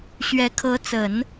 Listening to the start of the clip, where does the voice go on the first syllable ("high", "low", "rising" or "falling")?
rising